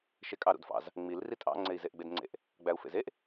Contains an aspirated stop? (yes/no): no